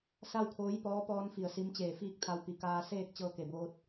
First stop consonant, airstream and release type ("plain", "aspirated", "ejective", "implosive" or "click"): aspirated